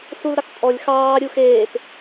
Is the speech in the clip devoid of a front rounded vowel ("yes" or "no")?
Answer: yes